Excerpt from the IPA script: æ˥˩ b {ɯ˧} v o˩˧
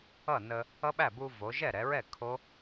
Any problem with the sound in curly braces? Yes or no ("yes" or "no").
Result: yes